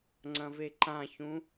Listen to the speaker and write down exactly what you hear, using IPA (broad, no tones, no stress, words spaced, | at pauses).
ŋ͡ǀɐ̃veǃãçũ